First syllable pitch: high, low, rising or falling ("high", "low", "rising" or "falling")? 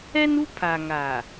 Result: high